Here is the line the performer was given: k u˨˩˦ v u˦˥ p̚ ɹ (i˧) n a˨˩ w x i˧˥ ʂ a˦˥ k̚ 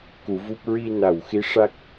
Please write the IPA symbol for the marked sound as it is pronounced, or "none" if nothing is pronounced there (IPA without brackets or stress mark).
i˧